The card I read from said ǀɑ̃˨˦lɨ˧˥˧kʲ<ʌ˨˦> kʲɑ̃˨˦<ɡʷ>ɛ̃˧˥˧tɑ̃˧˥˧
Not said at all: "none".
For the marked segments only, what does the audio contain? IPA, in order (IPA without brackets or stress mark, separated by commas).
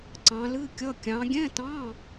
ʌ˧˥˧, ɡʲ